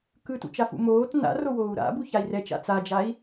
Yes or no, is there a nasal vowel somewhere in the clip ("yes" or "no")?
no